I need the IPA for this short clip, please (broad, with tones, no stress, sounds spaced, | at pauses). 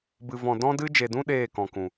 b ɨ˨ v ɔ̃˨ d ɔ̃˧ d ɨ˧ d͡ʒ e˨ d ũ˧ ɗ eː˦˨ k ɔ̃˨ k ũ˨